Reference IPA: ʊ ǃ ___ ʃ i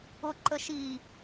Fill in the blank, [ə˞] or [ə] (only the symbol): ə